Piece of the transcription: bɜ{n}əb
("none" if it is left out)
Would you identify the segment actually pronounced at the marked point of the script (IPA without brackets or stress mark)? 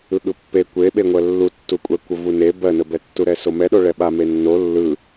n